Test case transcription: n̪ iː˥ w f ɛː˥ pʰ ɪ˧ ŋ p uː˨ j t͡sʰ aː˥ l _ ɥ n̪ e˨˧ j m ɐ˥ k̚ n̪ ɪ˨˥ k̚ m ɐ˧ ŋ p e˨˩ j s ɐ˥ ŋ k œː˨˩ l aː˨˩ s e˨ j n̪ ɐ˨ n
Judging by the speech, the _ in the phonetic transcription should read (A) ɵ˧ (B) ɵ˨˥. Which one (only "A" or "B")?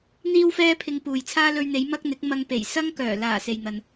A